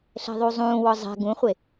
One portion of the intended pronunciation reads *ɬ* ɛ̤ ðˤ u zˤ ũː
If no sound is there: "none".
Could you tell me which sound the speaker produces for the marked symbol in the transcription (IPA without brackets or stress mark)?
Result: ɬ